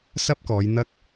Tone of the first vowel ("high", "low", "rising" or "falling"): high